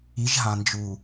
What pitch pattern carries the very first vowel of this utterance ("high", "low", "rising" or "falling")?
rising